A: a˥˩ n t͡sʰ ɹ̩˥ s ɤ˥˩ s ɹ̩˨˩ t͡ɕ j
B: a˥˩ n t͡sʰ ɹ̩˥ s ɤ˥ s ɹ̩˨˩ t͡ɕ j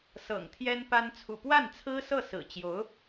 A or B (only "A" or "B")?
A